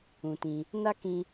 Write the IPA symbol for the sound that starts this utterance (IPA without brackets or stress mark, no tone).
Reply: ũ